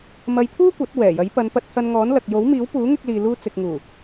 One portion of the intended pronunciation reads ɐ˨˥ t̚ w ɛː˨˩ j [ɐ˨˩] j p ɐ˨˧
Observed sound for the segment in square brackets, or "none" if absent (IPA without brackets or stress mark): ɐ˨˥